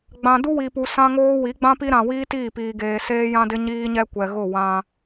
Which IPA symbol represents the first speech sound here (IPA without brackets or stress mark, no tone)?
ɡ͡b